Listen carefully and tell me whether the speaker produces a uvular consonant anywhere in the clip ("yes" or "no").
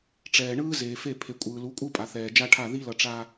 no